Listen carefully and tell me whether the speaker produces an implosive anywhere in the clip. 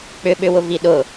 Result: yes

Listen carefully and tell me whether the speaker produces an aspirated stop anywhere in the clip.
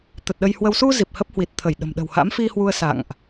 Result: yes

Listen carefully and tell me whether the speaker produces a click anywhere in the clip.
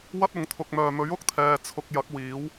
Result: no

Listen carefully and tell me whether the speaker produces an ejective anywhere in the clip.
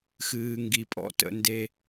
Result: yes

